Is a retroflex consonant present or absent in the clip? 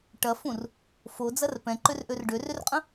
present